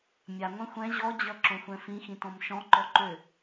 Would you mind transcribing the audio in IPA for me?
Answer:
mʲaŋʷɛ̃ xʷɛ̃ ʑɔd͡ʑʌǁõxʷɛ̃ fĩxĩtɔ̃m ʃɔ̃ǃɔǃø

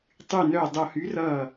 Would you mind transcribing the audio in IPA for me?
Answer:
tˤy˧˩nœ˧˩ dˤo˧˩hy˨˥rʌː˧˩

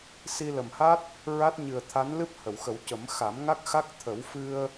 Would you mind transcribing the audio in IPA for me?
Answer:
si˧lə˨˩mha˦˥t̚ | ɹa˦˥t̚ɲɨ˨˩ə̯t̪ʰa˧˥nlɨ˦˥p̚ hə˨˩˨wxə˨˩˦wcə˨˩˦m xa˨˩˦mŋa˦˥k̚ xa˦˥k̚t̪ʰə˨˩˦w fɨ˧ə̯

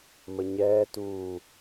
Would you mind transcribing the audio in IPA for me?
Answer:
məɲɛːtuː

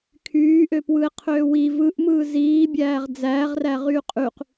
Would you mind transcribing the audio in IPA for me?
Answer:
kʰyːʔøpwɯe̯qʰøː wi vɯʔmɯː ziːbʲæːʁ d͡zæːʁræʁyː qʼyq

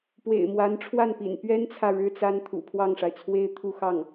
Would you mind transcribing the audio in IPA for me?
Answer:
pwḛ˨˩ɪ̯mwa˧˥nʈ͡ʂʰwa˥˩npḭ˨˩n pɥɛ˥nt͡sʰä˨ ɻɻ̩˥t͡sa˥n t̪ʰṵ˨˩pʰwɑ˥˩ŋʂa˩ɪ̯t͡sʰwe˥ɪ̯ t̪ʰu˥˧xɑ˥˩ŋ

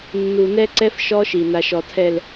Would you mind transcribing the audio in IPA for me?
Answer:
nːu˨nɛ˦ǀɛ˦f ʃɔ˦ʃi˨ na˨ʃɔ˨tʰɛ˨l

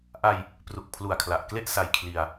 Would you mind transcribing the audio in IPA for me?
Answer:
ʔa˧j | pru˨˩k̚pʰlu˨˩a̯kʰla˨˩ʔkle˥˩ʔ sa˧jkʰli˧a̯

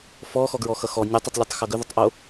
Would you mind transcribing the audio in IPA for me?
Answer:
fɔ xɔɡɹɔxʌxɔ nʲʊtˤʊtˤlʲɛtˤ xʌɡɵðʊtˤ ʔo

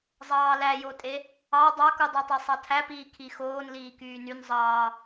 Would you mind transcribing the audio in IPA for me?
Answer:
zˤɑːlæjotʼe | ɑ dˤɑkudˤɛtˤɛ sˤɑtʰæpiː kʰixoːn liːkyːnyn zˤɑː

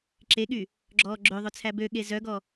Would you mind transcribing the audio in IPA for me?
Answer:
ǁeɠy | ɡ͡ǁɔːɡ͡ǁøðˤɵt͡sʰæ bø ɠezœɡɔ

